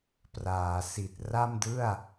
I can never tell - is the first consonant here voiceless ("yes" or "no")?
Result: yes